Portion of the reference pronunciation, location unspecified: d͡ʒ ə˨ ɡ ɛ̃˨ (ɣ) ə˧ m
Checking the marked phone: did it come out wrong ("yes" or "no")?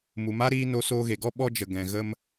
no